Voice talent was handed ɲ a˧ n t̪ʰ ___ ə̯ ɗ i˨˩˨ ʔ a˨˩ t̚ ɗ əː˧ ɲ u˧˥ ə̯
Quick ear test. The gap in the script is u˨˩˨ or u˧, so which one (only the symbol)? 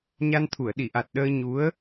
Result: u˨˩˨